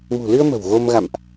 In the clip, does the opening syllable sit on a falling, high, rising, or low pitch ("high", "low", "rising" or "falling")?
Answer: low